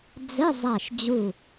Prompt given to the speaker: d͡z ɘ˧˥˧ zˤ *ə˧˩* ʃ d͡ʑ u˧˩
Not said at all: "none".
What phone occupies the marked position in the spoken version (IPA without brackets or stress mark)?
a˧˩